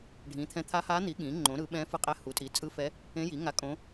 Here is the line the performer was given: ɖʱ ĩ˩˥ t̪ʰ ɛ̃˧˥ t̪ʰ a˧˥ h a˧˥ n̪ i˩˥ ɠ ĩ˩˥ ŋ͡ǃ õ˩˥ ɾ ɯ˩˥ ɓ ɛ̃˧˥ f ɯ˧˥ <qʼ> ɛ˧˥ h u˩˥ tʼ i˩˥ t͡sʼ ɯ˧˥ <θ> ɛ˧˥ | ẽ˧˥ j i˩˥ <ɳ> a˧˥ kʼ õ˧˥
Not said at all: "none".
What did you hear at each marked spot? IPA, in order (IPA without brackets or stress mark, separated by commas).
qʼ, f, ŋ